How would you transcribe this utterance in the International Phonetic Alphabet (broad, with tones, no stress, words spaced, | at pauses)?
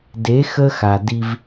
de˨˦ xə˦xa˨ di˦v